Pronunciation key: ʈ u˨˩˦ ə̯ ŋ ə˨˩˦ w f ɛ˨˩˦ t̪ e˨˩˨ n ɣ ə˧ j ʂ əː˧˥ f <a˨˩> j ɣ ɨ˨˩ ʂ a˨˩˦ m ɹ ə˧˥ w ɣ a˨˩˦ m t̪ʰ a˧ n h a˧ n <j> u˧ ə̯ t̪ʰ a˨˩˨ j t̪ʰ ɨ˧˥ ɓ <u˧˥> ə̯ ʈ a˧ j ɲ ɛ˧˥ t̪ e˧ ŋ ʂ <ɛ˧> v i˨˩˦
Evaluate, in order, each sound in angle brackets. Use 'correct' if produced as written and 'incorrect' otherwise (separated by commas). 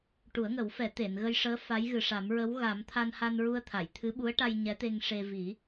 incorrect, incorrect, correct, incorrect